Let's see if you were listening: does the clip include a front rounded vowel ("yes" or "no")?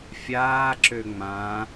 yes